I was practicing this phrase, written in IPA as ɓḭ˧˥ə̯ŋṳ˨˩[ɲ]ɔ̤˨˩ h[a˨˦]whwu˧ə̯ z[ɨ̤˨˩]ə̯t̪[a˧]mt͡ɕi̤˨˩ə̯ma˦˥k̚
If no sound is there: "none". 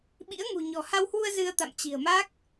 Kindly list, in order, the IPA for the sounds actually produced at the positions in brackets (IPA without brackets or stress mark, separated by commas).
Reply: ɲ, a˧, ɨ˧, a̰˧˨